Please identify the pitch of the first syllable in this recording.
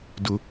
low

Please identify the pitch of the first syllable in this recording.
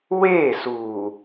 falling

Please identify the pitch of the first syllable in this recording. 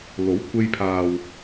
rising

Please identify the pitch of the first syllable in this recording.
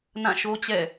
falling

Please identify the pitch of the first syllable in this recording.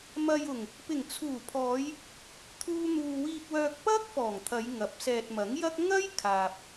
low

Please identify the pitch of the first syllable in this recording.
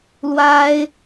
high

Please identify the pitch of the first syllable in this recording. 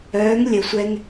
rising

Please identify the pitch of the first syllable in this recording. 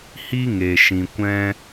high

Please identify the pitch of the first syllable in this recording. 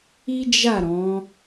high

